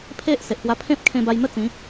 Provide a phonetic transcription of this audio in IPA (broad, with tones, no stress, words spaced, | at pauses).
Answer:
pʰe˦ʔ se˨ʔpwa˦ pʰẽ˦p̚kʰẽ˧ba˧jn̪ə˥˧ t͡sĩ˨˦